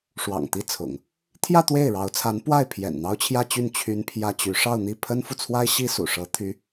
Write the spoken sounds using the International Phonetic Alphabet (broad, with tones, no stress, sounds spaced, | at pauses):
ʂ w ɑ̰˨˩ ŋ t̪ i˥˩ t͡sʰ ʊ̰˨˩˦ ŋ | t̪ʰ j ä˥˧ t̪ w e˥˩ ɪ̯ ɻ ɑ˧˥ ʊ̯ t͡sʰ a˧˥ n p w a˥˩ ɪ̯ pʰ j ɛ̰˨˩ n n̪ ɑ˥ ʊ̯ t͡ɕʰ j ä˥˧ t͡ɕ y˥˩ n t͡ɕʰ y˥ n pʰ j ä˥ t͡ɕ y˧˥ ʂ ɑ˥˧ ʊ̯ n̪ i˥˩ pʰ ə˥ n f u˨ t͡sʰ w a˥ ɪ̯ ɕ i˥ s ṵ˨˩ ʂ ɤ˧˥ t̪ʰ y˧˥